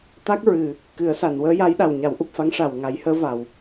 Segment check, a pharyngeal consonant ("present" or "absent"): absent